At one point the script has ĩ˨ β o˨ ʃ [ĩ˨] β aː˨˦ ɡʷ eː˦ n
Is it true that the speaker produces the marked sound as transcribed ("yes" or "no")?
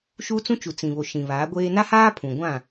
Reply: yes